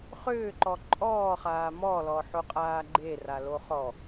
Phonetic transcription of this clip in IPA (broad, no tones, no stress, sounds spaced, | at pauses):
χ ʏː ǃ ɔ ǃʼ ɔː χ aː m ɔ l ɔ ħ o qʼ aː ɡ͡ǃ e r a l o χ ɔ